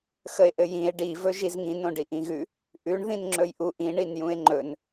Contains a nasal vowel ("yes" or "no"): yes